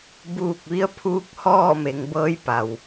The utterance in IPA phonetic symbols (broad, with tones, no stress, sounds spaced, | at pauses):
b uː˧˩ k̚ ʋ i˧˥ ə̯ pʰ uː˧˥ k̚ h ɔː˥˨ m e˩˧ ŋ b ɤː˧˥ j p a˩ w